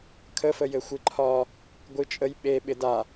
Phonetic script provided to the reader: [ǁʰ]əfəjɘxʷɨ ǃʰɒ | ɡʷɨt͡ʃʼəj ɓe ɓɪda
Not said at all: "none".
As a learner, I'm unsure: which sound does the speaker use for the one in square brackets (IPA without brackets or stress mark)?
kʰ